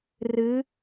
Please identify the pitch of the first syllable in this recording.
rising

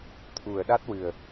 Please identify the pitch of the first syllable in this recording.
low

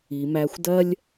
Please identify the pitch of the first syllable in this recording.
low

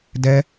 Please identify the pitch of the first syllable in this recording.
high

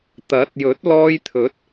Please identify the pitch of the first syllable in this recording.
rising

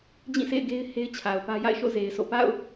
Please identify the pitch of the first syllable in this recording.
falling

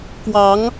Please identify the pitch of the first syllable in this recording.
rising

